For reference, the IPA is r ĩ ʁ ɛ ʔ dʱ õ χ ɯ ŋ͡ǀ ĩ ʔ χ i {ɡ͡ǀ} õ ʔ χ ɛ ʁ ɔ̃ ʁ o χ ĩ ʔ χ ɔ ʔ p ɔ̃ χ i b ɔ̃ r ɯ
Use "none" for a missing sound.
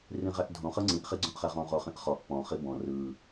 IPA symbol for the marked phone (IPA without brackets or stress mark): ɡ͡ǀ